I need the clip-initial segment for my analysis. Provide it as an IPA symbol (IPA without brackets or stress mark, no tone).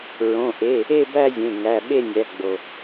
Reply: ɹ